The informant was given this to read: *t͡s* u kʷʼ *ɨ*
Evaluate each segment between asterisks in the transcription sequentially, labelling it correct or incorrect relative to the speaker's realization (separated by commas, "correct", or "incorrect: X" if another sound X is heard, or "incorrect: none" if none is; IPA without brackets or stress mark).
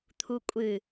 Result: incorrect: t̪ʰ, correct